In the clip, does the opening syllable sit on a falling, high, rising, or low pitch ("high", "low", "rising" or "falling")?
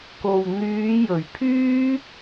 low